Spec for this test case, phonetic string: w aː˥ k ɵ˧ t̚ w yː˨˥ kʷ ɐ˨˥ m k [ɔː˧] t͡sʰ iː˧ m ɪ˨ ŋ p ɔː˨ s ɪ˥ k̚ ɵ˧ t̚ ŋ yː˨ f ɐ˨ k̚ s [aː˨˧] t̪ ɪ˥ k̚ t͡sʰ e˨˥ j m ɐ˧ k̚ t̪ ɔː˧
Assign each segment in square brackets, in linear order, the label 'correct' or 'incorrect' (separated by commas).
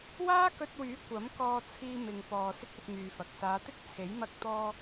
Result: correct, correct